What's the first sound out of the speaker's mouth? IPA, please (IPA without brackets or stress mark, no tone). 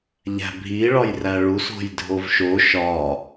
ʎ